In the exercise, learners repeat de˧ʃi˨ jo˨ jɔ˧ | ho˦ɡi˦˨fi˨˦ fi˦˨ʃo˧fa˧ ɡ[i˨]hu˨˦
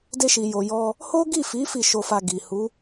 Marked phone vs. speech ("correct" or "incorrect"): correct